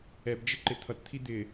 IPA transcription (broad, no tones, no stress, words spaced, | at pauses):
ɛbd͡ʒɪǃɪ t̪ʰʌtt̪ʰi d̪ɪ